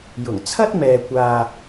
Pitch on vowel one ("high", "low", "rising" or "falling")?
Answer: low